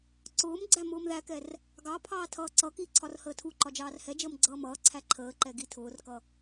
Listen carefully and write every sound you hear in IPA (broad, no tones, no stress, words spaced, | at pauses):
ǀʊːm ɡ͡ǀæmʊːmðækɛr | ɡɑpʰɑː tʰʌːǀʌki ǀʰɒrhəːtʰuǃɒ d͡ʒɑːrhɛd͡ʒəːm ɡ͡ǀʌːmʌːǀʰæ ǃʰəːǃɛ ɡitʰʊːrkʌ